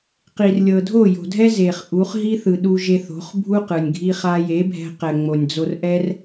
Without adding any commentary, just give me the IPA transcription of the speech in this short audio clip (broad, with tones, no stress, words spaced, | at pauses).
qi˨rlʲɤ˨ dʱo˦˨jo̤˨dʱɛ˦ ze˨χʔu˨˦χ ɦi˦θɯ˨ ɗu˧ʒe˧θo̤˨˦χ bʱu˦ qɯ˨nʲɡʱi˦χa˦ je˨˦bʱɛ̤˧qɛ˨ ŋ͡mo˨nʲd͡zo˧rʔɛ˦r